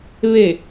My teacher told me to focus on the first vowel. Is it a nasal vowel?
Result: no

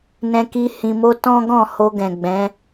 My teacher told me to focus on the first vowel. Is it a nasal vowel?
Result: yes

